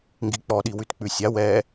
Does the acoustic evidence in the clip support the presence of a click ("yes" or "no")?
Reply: no